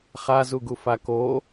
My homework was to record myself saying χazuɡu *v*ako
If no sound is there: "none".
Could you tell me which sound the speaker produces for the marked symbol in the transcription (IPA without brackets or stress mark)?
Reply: f